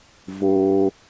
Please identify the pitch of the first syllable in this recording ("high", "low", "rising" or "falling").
high